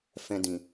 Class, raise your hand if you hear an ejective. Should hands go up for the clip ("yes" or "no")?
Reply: no